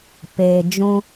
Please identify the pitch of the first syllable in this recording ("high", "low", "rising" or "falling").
low